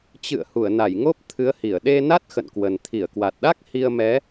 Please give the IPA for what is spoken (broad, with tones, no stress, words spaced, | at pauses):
t͡ɕɨ̰˧˨ə̯ hu˧˩ə̯na˧˩jŋo˦˥p̚ t̪ʰɨ˨˦ə̯hi˧˩ə̯ ɗe˧na˦˥t̚ xə̰˧˨nkwə˨˩n t̪ʰi˧˩ə̯kwa˨˩t̚ɗa˦˥k̚ hi˧ə̯mɛ˨˦